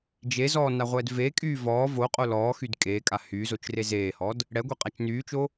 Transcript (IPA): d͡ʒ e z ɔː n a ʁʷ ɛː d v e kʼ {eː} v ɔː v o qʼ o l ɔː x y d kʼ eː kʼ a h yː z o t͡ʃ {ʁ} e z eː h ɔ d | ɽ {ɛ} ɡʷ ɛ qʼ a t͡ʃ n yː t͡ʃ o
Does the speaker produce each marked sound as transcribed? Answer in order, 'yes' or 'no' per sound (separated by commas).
no, no, yes